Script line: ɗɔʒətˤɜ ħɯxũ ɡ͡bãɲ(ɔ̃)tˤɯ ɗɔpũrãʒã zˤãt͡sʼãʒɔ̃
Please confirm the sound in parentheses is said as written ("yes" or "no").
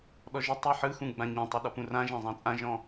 yes